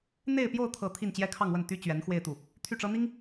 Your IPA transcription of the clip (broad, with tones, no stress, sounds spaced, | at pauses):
n̪ e˥˧ ɪ̯ p j o˥˧ ʊ̯ t̪ʰ ɤ˥˧ t̪ʰ i˥˩ n t͡ɕ j ɛ˥ kʰ ɑ˥˧ ŋ w ə˥˩ n t̪ y˥ t͡ɕ ɥ ɛ˧˥ n x w e˥˧ ɪ̯ t̪ u˥˩ | t̪ʰ y˥˩ ʈ͡ʂ ɤ˥ n̪ i˥ ŋ